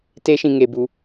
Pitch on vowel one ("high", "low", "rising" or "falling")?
high